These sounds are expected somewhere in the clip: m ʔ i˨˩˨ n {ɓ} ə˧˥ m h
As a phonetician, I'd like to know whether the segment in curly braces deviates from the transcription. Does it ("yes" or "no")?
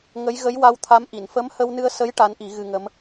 yes